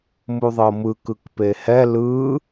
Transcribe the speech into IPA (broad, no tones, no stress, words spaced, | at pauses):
muðˤɤmɯkɯk pehɛ lɯ